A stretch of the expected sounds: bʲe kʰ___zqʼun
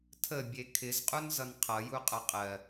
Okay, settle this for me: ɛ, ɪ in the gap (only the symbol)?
ɪ